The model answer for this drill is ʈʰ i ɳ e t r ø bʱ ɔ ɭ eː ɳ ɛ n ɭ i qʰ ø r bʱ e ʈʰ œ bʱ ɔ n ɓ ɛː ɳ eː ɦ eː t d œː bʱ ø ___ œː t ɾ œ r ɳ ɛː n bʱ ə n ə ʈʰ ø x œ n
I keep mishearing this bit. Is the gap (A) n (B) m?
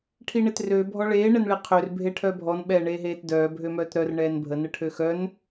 B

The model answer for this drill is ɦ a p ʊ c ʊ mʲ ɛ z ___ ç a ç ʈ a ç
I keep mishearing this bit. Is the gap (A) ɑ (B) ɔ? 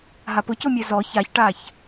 B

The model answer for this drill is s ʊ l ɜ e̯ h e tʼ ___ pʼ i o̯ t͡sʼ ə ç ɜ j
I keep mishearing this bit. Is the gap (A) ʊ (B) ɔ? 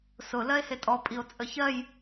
B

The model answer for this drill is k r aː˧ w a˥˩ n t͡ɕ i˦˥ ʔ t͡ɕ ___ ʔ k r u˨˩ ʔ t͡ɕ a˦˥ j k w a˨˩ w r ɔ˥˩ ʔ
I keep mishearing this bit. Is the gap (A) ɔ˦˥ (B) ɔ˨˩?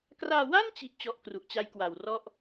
A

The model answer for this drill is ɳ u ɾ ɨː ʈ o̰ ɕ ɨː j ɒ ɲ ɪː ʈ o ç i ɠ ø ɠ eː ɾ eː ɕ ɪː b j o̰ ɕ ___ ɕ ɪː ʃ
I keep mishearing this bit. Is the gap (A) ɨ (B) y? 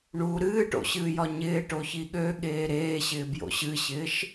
A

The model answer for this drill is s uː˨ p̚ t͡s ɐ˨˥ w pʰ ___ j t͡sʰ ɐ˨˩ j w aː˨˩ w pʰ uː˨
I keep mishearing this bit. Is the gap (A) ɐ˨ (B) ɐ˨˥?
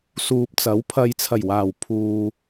A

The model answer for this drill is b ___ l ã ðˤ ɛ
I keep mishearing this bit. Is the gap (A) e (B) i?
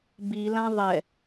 B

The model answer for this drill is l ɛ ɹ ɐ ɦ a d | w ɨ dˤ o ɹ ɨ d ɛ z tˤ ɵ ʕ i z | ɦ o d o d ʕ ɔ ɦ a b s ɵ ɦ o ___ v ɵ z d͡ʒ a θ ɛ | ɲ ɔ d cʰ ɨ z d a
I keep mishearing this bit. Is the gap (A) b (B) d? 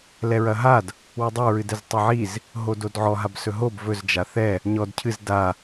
A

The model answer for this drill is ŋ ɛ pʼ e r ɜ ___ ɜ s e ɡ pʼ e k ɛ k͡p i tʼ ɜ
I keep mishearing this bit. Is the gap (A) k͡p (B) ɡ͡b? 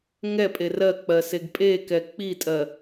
A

